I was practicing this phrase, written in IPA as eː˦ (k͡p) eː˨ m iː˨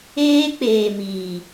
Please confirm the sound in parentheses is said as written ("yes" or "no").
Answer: yes